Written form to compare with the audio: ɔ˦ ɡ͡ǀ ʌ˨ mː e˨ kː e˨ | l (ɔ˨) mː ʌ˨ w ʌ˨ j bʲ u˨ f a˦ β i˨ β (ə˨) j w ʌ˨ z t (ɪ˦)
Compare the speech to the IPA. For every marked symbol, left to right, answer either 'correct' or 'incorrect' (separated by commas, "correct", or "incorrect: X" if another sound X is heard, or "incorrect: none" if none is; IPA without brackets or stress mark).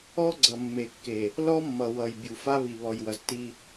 incorrect: ɔ˦, incorrect: ɔ˨, incorrect: i˦